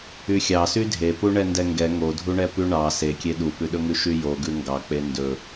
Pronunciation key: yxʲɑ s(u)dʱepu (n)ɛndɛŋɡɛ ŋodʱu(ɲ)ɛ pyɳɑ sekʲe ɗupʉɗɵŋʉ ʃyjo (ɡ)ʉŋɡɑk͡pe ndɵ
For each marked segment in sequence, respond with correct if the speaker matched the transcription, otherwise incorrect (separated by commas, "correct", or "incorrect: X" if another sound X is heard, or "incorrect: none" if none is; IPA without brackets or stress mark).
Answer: incorrect: y, incorrect: ɳ, incorrect: ɳ, correct